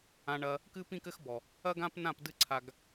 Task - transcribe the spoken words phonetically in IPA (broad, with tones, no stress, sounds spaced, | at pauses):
ã˧ ɳ ɐ˧ | k ɨ˦ p ĩ˦ k ɘ˦ x b ɔ˨ | ɐ˦ ɡ ã˦ p n ã˦˨ p d ɨ˦ ǀʰ a˧ ɡ